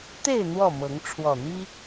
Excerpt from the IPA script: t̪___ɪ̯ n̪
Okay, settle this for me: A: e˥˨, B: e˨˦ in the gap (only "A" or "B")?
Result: A